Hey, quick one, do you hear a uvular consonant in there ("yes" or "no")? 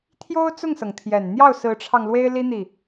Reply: no